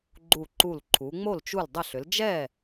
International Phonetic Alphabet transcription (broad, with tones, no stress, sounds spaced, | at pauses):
ɡ͡ǃ u˧˩ ǃ u˧˩ l ǃʰ u˩˧ ŋ͡m o˥˩ l t͡ʃ u˧˩ l dˤ ə˧˩ ɬ ʏ˩˧ l d͡ʒ ɛ˥˩